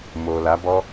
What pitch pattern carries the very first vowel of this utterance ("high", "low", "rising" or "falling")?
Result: low